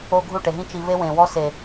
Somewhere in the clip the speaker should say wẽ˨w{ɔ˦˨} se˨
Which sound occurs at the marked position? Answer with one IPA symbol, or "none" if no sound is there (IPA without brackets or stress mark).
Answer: ɔ˦